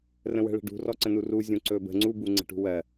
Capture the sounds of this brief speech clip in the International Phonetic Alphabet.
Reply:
r ə̃ w ə̤ ɭ ə̤ ɖ ṳ r ɔ ǀ ə̃ n u r u zʲ ũ ǀ ɵ b ə̤ ŋ͡ǀ u b u ŋ͡ǀ ə̤ ʈ ṳ w ɜ

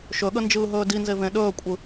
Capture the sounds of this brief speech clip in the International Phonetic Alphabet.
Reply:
ʃ ɵ ɠ ə n d͡ʒ ɯː ɦ ɵː d i n z e v ẽ ɗ ɵː kʷʼ ɯ

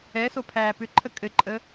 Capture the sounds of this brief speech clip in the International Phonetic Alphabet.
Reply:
ɛ s o pʰ æː p ʏ ǃʰ ə kʼ ɘ ǃʼ ə

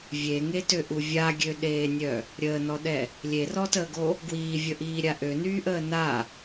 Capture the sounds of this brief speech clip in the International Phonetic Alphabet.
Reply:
vʲ e ŋ e t ø ʔ u vʲ a ɡʲ ø ɗ eː nʲ œ | ɾʲ əː n ɔ ɗ ɛ | lʲ e r ɔ t əː ɡ o | ɡ w iː vʲ ə ʔ iː ɾʲ a ʔ ø n yː ʔ əː n a

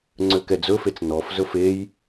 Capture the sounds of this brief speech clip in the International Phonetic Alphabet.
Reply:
ŋ͡ǀ ø k ɛ d͡z ɵ f e t͡s n ɔ f z ɵ f e j

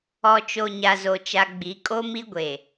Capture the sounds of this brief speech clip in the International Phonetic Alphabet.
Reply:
ɔ˨ t͡ʃ o˨ ɲ a˨ z o˨ t͡ʃ a˨ ɡ͡b i˨˦ kʼ o˦ m i˦ ɡʷ e˨

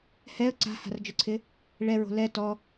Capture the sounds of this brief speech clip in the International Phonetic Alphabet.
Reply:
h ɛ ə̯ ǀ a̤ h a̤ r d͡ʒ ʊ ǀʰ ɪ | ɭ ɛ ɹ o̤ l ɛ t ɔ

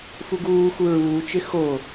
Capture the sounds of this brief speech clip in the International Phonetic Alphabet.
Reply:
f u ɡ uː x u ɹ uː t͡ʃ ɪ x o

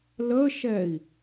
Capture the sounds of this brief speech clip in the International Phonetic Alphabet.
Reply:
l ə ʃ ɛ i̯

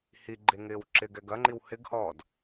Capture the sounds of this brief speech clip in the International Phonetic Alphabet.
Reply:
h i ɡ͡ǃ e ŋ ɪː w ǁ ɪ ɡ ɛ ɡ ɐ ŋ͡ǃ i w h ɪ ɡ h ɔː d

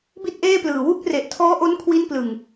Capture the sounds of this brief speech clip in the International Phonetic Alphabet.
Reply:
b i˥˩ t̚ ʔ eː˥˩ p l ɯː˨˩ w u˦˥ k̚ r e˨˩ ʔ tʰ ɔː˦˥ ʔ o˦˥ n kʰ w i˦˥ n p l ɯ˨˩ ŋ

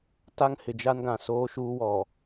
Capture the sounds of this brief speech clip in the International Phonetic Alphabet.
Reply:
t a˦ ŋ h ɪ˨ d͡ʒ a˦ n ɡ ã˨ s oː˦ ʃ uː˦ w ɔ˨

